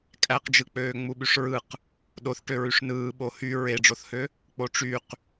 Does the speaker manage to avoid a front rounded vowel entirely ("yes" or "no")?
no